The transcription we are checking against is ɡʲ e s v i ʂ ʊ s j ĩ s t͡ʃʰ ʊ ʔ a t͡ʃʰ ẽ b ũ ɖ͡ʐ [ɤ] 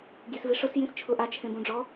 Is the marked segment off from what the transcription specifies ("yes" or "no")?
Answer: yes